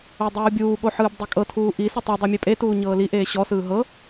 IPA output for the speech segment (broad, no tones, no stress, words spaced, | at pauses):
odˤuːbʲuː ɠoħɯːbdˤekʼɤ tʰuːʔi sɯtˤɤ dˤomʲepʼe tuːɲɤːli ʔeːɕɔ sɯːɦɤ